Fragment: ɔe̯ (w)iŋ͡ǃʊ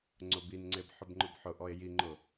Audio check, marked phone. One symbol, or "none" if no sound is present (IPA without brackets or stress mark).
j